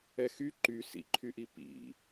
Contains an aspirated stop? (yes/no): yes